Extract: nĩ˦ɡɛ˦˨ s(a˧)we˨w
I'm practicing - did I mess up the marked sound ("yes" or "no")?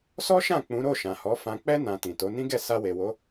no